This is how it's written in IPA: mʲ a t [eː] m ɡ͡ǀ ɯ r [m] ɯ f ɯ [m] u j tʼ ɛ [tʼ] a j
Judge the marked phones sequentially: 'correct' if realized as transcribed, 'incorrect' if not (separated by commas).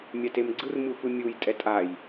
incorrect, correct, incorrect, correct